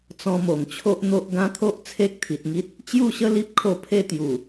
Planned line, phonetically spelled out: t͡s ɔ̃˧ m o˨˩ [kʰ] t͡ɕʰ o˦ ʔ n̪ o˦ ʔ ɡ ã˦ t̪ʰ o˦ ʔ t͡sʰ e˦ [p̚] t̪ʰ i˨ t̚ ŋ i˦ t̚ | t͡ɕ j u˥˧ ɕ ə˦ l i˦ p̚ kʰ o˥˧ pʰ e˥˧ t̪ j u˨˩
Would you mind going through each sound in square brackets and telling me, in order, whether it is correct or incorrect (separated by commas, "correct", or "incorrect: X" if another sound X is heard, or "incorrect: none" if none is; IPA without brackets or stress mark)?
incorrect: ŋ, incorrect: k̚